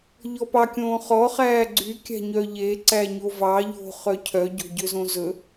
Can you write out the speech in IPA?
ʎ ɔ p ɑ kʲ õː χ ɔ χ æː ɡ͡ǀ y kʲ æ̤ ɲ œ ʎ e ǀ æ ɲ o v ɑ ʎ o̤ χ œ cʰ œ ɟ o̤ ɟ ø z õ z ɵ

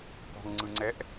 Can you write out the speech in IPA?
p ɔ̤ ŋ ŋ͡ǀ ɯ ŋ͡ǀ ɛ ʔ

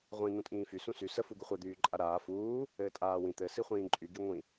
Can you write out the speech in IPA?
ʁʷ ĩ n̪ ũ tʼ ĩː f y s ũ s y s ə f u ɡ u χʷ ɛ d̪ yː ǃʼ a ɾ aː f uː | ɘː tʼ aː w ĩ t̪ ɘ s i χʷ ĩː ǃʼ y ɡ i ŋʷ ĩ

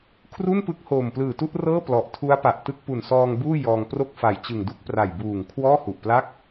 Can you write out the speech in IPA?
kʰ r u˥˩ n p ɯ˦˥ k̚ h oː˨˩ m p l ɯː˨˩ t u˥˩ ʔ r ɤː˥˩ p l ɔ˨˩ ʔ tʰ u˦˥ a̯ p a˨˩ ʔ t ɯ˥˩ k̚ p u˨˩ n s ɔː˧ ŋ b uː˥˩ j ɔː˧ ŋ p r o˥˩ k̚ f a˨˩ j t͡ɕ ɯ˨˩ ŋ d u˥˩ k̚ p r a˨˩ j b uː˨˩ ŋ kʰ w ɔː˥˩ h u˨˩ ʔ p l a˥˩ k̚

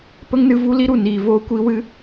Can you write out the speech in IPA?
p ə˦ ŋ n ɨ˧ v u˦ l i˦ ɾ u˨ n iː˨ v oː˦ kʷ i˦ w ɨ˦

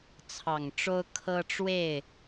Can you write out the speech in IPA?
t͡sʰ ɑ˨˩ ŋ ʈ͡ʂ o˦ ʊ̯ kʰ ɤ˦ ʈ͡ʂ w e˥˨ ɪ̯

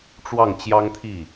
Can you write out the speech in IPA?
ʈ͡ʂ w ɑ˥˩ ŋ t͡ɕ j ɑ˥ ŋ t̪ʰ i˥˩

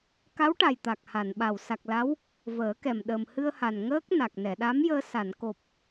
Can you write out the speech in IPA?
k a˧˥ w ʈ a˨˩ j t̪ a˨˩ k̚ h a˨˩˨ n ɓ a˨˩ w s a˨˩ k̚ l a˧˥ w | v əː˨˩˦ k ɛ˨˩ m ɗ ə˨˩ m h ɨ˧ ə̯ h a˨˩ n ŋ əː˦˥ k̚ n a˨˩ k̚ n ɛ˨˩˨ ɗ a˧˥ m j əː˧ s a˨˩˨ n k o˨˩ p̚

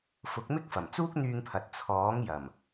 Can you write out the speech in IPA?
f ʊ˨˥ k̚ m ɪ˥ k̚ f ɐ˨˩ m t͡s uː˥ k̚ n̪ yː˧ ŋ pʰ ɐ˨ t̚ t͡sʰ ɔː˨˥ ŋ j ɐ˨˩ m

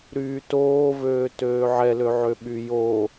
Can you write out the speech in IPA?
ɾ yː t oː v øː t øː ʕ ɛ l ø ʕ ø ɓ y j o

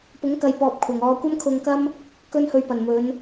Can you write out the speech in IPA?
p ʊ˨˥ ŋ k ɐ˨˧ j p ɔː˨ p̚ kʷʰ ɐ˨ ŋ ɔː˧ kʷ ɐ˥ m kʰ ʊ˧ ŋ k ɐ˥ m | k ɵ˧ n h ɵ˨ ɥ p ɐ˨˩ n m ɵ˨˧ n

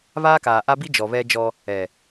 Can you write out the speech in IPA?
β aː˦ k aː˨ ʔ a˦ b i˦ d͡ʒ ɔ˨ β ɛ˦ d͡ʒ ɔ˦ | ɛ˨

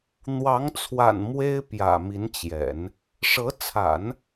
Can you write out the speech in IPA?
n̪ w ɑ˧˥ ŋ t͡sʰ w a̰˨˩ n m w e˥ ɪ̯ p j ä̰˨˩ m i˧˥ n t͡ɕ j ɛ̰˨˩˦ n | ʂ ɤ˧˥ t͡sʰ a̰˨˩˦ n

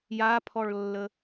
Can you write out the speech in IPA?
j a pʰ ɔ ɭ lː ə

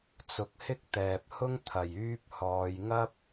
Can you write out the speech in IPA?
t͡s ʊ˨ k̚ h ɪ˥ k̚ t̪ ɛː˨ p̚ h ʊ˥ ŋ t̪ʰ ɐ˨˩ j yː˧ p̚ h ɔː˨ j ŋ ɐ˥ p̚

